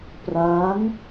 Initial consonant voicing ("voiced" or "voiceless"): voiceless